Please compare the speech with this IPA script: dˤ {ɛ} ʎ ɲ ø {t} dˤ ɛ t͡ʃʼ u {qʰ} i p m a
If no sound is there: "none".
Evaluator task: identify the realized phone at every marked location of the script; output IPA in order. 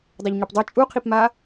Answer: ɛ, p, qʰ

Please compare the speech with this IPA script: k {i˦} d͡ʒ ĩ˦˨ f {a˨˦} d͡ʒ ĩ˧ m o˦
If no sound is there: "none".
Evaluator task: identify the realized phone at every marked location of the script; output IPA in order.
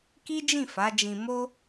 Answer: i˦, a˨˦

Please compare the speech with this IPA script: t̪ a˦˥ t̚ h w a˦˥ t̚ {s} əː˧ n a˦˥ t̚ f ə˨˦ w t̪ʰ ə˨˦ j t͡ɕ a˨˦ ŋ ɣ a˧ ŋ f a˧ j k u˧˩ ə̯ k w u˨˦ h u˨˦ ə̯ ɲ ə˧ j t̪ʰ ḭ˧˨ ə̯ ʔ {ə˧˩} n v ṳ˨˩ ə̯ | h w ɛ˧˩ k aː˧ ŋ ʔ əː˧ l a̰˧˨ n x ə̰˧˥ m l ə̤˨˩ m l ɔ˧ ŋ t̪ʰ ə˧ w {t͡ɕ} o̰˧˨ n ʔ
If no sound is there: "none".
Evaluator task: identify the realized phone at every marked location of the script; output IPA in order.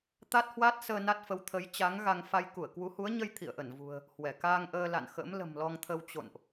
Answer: s, ə˧˩, t͡ɕ

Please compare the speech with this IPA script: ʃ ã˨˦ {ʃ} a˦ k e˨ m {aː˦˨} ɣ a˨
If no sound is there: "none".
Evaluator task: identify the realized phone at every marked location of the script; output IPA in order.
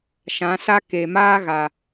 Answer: s, aː˦

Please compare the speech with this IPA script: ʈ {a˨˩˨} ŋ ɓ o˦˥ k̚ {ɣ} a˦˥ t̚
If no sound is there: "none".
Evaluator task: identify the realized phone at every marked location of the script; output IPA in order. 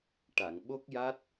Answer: a˨˩˨, j

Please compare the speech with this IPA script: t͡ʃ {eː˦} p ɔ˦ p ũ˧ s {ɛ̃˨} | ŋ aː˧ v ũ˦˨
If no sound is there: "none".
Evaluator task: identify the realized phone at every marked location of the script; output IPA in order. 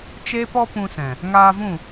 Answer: eː˦, ɛ̃˨

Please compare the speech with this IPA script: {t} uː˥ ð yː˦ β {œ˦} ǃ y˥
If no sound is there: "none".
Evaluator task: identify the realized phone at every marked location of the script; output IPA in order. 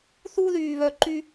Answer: θ, œ˦

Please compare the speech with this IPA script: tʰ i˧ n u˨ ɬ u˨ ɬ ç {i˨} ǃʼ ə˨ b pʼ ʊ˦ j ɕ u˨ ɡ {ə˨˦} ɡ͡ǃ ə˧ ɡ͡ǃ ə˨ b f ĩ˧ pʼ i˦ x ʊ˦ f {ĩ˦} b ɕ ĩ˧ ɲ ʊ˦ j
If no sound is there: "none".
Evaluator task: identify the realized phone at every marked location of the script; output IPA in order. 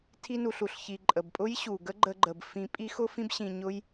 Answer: i˨, ə˦, ĩ˦

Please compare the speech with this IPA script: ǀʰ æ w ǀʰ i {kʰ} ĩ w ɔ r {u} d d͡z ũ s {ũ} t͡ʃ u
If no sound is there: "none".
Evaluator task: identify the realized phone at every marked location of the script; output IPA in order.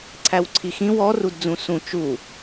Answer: x, u, ũ

